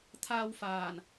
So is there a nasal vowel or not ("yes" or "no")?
no